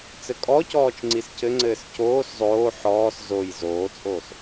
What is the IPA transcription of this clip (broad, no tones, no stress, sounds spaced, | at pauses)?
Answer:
t͡s ɘ kʼ ɔ c ɔː t͡ʃ ŋ͡ǀ i s c ɘ ŋ͡ǀ ɘː s c oː s zˤ oː ħ ɔː s z o j z oː t͡sʼ oː s